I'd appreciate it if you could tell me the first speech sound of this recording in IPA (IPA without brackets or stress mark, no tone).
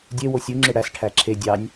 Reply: dʲ